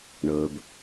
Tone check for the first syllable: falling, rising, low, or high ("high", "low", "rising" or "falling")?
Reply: low